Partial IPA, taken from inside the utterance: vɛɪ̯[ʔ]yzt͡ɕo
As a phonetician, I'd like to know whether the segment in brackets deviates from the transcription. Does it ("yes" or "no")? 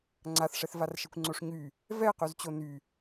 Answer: yes